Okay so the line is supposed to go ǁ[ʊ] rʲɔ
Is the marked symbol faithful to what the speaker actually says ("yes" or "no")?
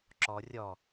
no